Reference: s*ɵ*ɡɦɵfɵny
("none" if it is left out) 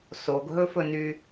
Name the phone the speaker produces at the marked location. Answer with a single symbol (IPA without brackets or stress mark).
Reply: o